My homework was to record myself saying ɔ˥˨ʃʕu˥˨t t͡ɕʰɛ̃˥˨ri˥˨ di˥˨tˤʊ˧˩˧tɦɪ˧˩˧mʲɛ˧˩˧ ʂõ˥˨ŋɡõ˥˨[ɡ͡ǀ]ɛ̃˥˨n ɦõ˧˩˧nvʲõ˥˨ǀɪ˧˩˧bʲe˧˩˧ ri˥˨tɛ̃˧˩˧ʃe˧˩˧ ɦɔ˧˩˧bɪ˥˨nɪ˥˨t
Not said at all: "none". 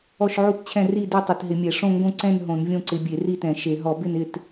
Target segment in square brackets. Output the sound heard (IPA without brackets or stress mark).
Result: ǀ